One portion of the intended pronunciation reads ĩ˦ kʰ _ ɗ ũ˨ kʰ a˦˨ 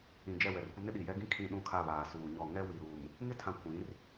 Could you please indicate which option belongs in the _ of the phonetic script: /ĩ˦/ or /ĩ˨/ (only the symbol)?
ĩ˨